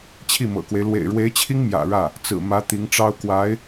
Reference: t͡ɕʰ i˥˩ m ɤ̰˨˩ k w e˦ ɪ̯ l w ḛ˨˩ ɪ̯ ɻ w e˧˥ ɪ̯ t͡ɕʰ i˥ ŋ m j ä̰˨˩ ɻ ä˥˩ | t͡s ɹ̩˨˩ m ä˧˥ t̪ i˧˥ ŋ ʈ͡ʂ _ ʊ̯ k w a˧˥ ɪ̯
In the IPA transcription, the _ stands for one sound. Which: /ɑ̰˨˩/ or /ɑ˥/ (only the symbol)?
ɑ˥